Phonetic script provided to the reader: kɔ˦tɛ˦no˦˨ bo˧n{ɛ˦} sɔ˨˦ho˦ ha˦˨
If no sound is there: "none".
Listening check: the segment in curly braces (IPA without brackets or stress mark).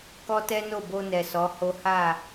ɛ˨